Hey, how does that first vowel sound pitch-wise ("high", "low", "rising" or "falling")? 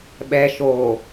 low